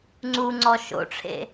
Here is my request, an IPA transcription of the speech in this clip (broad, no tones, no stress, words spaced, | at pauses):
ŋ͡ǀuŋ͡ǀɔ ʃo̰ʈ͡ʂʰḛ